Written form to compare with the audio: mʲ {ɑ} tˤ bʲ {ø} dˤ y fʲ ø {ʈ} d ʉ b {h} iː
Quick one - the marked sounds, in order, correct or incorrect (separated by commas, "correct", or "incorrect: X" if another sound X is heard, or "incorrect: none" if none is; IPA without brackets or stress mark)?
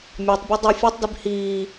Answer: correct, correct, incorrect: tˤ, correct